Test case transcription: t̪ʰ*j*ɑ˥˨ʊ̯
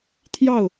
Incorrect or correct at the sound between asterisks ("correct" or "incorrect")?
correct